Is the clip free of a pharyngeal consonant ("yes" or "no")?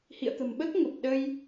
yes